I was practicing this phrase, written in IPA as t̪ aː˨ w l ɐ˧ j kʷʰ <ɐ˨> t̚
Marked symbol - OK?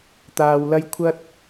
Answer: no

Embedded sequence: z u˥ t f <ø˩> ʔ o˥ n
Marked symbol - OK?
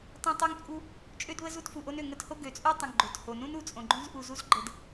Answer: no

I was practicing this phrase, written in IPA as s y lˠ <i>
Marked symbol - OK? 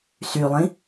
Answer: no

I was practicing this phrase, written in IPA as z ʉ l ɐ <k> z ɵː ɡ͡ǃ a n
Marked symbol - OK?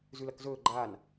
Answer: yes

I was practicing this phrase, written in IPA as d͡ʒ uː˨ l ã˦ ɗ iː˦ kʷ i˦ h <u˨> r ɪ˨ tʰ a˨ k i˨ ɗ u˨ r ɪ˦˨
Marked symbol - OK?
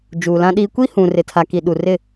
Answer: no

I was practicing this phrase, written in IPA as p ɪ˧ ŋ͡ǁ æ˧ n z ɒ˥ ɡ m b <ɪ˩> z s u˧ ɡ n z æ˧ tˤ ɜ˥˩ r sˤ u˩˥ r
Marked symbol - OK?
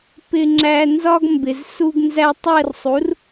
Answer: yes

